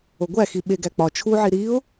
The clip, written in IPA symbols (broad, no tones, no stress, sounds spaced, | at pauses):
o ɡʷ æ x i ɓ e ɡ æ k͡p ɒ t͡ʃʰ u ʕ i ɾ i ʊ̯